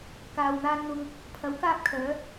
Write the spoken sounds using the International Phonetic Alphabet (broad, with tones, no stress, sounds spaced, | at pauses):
k aː˨ w n̪ aː˧ n n̪ ʊ˧ ŋ | pʰ ɐ˨˥ w k aː˥ p̚ kʰ œː˨˥